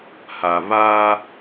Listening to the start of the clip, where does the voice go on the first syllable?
low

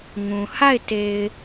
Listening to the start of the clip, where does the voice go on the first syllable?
low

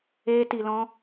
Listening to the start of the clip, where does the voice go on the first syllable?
high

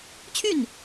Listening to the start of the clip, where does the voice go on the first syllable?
falling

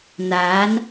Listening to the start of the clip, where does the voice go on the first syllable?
rising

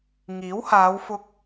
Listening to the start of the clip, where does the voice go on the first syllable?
rising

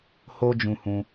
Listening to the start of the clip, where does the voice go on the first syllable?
high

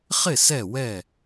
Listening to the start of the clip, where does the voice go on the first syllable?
falling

